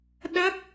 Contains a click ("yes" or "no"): no